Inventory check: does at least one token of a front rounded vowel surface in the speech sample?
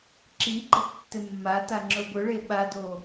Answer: no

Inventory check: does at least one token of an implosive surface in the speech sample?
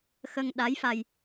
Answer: yes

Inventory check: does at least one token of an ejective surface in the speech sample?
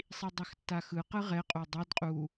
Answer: yes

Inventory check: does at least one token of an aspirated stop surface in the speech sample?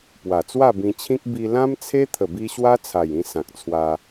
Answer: yes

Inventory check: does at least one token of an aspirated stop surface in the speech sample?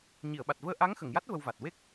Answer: no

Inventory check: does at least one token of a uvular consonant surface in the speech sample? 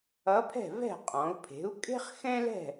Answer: yes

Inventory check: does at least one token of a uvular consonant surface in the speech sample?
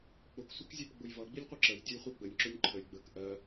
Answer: yes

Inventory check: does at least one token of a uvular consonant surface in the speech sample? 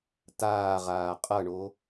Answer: yes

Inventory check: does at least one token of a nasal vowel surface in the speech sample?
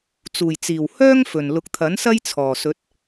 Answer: no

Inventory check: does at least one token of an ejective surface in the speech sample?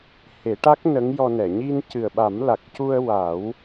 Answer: no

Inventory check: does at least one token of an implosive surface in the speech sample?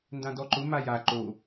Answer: no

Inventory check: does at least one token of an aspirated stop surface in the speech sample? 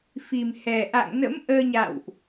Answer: no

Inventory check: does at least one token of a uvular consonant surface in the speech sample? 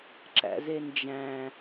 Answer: no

